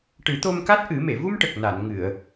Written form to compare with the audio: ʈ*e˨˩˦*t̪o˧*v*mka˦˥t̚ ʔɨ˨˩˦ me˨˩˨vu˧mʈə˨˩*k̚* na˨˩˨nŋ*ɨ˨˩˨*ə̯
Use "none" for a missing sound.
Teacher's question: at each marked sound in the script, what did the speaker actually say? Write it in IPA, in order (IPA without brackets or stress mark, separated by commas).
ɨ˨˩˦, none, k̚, ɨ˨˩˨